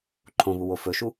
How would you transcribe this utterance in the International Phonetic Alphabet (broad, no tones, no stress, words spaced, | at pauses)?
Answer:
ǃʰõβuwo fɵʃu